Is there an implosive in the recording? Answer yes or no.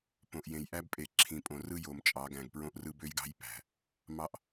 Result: no